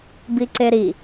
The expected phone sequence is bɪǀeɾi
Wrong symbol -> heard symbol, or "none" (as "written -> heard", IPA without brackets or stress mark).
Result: ɪ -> i